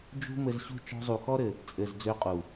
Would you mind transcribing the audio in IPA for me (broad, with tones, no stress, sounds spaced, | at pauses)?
d͡ʒ ṳ˦ m ɘ˧ z ɕ ṳ˦ t͡ʃ ɔ̤˧ zˤ u˨ x ɔ˦ ɾ ɘ˨ | t͡sʼ ɘ˨ z d͡z ø˧ qʼ u˨